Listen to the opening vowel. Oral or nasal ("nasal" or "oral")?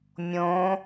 nasal